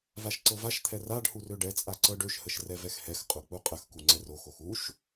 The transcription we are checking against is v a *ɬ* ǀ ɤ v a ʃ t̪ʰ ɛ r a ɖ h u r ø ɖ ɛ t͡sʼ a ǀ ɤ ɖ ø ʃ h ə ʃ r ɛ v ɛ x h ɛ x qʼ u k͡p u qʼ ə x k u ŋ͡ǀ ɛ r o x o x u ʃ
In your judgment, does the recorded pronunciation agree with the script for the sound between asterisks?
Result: no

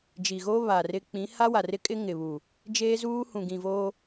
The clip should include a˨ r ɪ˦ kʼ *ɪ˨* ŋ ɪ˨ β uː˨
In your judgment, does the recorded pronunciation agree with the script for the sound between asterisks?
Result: no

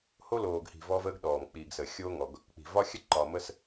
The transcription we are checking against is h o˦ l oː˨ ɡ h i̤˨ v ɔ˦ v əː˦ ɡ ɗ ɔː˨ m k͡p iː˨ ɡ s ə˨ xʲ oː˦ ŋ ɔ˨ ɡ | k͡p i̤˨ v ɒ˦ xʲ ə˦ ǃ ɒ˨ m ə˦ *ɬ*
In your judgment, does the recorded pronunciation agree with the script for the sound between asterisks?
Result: no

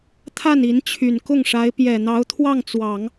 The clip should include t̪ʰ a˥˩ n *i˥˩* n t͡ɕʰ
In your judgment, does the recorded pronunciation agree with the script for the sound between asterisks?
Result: no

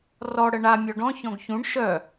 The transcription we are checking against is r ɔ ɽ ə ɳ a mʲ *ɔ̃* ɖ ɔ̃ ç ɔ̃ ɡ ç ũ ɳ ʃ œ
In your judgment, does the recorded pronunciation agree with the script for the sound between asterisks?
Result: no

